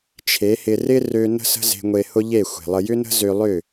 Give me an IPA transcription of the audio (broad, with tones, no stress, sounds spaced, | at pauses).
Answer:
t͡ʃʰ e˨˦ h ɪ˧ r ɪ˦ r ø˧ n ə̤˦ s ə̤˦ z e̤˧ ŋʷ e˧ h ʊ˦ ʎ e˦˨ xʷ e̤˨ lˠ ə˧ j ʏ˦ n ə̤˦ z ø˧ lˠ ʏ˦˨